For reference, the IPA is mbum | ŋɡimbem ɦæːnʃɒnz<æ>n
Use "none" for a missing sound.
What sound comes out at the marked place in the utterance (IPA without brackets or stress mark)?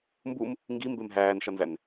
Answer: æ